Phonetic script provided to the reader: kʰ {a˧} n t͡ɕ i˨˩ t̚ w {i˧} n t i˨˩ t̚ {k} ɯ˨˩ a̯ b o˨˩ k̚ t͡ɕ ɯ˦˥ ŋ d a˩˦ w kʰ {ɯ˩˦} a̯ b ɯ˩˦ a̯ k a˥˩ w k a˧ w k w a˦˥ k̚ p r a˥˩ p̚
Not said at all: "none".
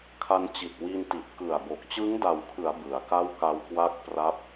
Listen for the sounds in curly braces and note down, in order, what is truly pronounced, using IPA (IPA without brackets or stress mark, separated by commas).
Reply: a˧, i˧, k, ɯ˩˦